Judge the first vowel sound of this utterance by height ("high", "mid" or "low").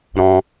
mid